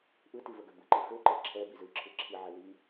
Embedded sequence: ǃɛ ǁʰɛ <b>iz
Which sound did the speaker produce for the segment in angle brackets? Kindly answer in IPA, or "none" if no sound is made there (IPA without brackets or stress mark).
b